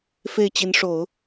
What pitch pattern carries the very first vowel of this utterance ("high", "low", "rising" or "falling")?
falling